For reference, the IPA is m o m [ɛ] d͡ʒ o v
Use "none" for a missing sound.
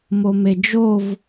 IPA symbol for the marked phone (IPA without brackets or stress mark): e